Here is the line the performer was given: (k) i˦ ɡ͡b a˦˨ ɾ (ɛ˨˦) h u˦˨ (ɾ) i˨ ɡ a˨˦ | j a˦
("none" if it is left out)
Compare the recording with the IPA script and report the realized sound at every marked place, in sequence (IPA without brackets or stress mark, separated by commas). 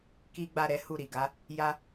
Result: k, ɛ˨˦, ɾ